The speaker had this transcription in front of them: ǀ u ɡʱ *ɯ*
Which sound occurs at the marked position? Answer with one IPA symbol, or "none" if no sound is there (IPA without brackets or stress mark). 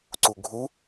u